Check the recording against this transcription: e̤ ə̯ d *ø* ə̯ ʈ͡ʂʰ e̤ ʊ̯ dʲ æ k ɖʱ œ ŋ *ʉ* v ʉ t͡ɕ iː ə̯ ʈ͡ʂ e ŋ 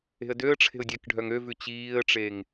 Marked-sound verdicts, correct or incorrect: correct, incorrect: ø

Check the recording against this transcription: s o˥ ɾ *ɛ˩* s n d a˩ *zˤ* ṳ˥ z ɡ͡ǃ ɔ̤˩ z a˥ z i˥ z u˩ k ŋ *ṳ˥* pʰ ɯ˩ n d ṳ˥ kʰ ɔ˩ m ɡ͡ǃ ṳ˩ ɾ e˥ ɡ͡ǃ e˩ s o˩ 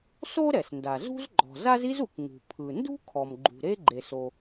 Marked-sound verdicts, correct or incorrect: correct, incorrect: z, incorrect: ṳ˩

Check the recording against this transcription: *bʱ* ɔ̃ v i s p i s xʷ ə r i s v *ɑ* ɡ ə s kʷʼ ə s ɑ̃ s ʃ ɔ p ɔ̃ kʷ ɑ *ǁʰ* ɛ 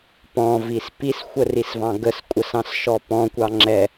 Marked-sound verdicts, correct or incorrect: incorrect: p, incorrect: ɑ̃, incorrect: ŋ͡ǁ

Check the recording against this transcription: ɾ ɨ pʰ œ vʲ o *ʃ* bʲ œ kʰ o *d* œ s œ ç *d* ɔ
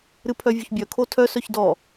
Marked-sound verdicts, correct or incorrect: incorrect: ç, incorrect: tʰ, correct

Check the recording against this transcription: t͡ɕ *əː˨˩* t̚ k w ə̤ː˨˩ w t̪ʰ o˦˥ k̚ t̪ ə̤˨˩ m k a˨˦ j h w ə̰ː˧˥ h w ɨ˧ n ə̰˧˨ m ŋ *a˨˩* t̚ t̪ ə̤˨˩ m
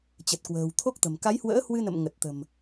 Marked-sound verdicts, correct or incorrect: incorrect: ə˨˩, incorrect: ə˨˩

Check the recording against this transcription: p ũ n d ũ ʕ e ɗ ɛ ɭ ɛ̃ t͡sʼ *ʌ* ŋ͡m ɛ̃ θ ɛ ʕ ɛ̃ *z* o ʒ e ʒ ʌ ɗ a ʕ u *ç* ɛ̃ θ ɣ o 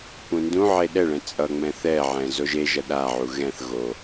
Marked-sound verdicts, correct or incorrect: correct, correct, incorrect: ɣ

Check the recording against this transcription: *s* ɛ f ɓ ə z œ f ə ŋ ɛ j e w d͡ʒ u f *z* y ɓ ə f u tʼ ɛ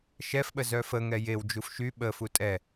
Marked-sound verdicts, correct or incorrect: incorrect: ʃ, incorrect: ʃ

